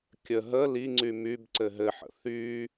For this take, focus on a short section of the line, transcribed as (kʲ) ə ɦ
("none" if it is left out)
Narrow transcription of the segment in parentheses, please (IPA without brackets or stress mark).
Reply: kʲ